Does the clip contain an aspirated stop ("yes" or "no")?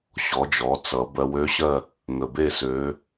no